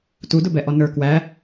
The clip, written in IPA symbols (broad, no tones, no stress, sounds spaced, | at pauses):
t u d ʊ b ɛ ʔ ɔ n ə˞ k w æ